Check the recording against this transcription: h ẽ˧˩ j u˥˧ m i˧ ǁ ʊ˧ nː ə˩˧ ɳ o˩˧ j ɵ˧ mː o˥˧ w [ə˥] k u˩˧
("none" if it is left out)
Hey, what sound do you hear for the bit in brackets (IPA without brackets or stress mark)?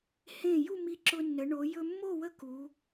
ə˥